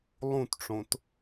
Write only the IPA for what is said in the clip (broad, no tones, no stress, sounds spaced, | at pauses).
lˠ ũ t ʈ͡ʂ õ t